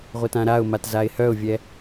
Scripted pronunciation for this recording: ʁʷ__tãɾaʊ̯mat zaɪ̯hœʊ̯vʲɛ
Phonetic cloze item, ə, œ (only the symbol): ə